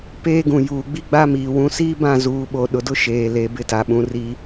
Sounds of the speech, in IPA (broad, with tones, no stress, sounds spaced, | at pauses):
p eː˦ ɡ ũ˨ j uː˨ ɡ͡b i˦ ɡ͡b a˦ m iː˨ w ũ˨ s iː˦ b ã˦˨ z uː˨ ɓ o˨ ɗ ʊ˨ d ʊ˦ ʃ eː˨ l e˨ b ɪ˦ t a˨ ɓ ũ˨ r i˦